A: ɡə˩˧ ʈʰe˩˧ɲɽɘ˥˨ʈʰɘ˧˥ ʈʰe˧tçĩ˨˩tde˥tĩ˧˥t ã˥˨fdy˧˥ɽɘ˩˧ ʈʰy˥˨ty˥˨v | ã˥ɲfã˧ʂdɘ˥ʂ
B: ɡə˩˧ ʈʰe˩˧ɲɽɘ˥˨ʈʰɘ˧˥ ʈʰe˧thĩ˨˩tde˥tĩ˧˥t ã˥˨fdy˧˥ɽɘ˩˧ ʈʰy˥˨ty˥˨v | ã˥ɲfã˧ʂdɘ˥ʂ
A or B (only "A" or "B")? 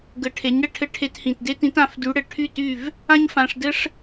B